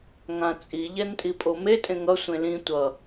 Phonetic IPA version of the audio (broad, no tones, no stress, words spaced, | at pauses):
ŋãt͡sʼi ʎɛntʼipʼome tʼẽŋʌ sʷẽlĩ tʷʌ